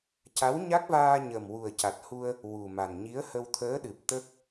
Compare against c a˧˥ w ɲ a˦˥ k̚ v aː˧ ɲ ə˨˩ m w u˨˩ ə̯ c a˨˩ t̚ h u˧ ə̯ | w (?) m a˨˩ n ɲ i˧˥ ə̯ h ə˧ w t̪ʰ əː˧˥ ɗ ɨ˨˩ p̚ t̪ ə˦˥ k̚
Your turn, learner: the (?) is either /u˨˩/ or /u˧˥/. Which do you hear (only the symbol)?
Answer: u˨˩